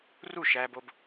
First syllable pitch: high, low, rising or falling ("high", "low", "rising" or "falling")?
falling